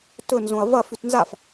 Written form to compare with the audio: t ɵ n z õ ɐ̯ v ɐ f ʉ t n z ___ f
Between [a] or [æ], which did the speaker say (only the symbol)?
a